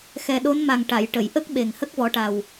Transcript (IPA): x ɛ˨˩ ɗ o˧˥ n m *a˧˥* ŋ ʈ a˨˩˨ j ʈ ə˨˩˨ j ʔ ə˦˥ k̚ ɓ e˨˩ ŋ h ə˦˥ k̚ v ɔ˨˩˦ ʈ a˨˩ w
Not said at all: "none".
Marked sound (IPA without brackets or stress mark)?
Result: a˨˩